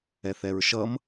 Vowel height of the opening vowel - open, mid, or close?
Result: mid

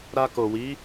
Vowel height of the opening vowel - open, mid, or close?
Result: open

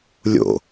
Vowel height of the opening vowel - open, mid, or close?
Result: mid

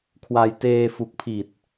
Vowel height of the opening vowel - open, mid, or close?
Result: open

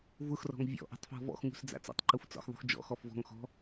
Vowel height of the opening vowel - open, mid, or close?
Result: close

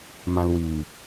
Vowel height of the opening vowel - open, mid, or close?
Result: open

